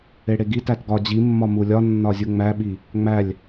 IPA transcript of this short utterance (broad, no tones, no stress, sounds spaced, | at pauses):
e ɽ e ɡ i t æ t ɡ ɒ d͡ʑ i mː ɒ m u lʲ ɒ nː ɒ zʲ u ŋ͡m æ ɓ i | ŋ͡m æ lʲ